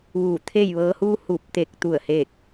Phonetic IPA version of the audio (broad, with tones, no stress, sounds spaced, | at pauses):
ʋ uː˧˩ t̪ʰ eː˥˨ j ʋ ɤː˧˥ h uː˧ h uː˧˩ p̚ t̪ e˧˩ k̚ t̪ u˧˩ ə̯ h eː˥˨ k̚